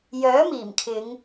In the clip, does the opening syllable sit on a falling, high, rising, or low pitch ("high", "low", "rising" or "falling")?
rising